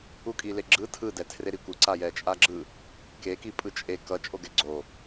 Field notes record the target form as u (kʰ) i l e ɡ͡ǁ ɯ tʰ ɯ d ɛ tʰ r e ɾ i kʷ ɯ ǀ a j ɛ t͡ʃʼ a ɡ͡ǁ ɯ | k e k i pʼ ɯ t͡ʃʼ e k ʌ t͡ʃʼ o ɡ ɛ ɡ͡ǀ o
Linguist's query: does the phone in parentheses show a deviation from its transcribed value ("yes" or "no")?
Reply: yes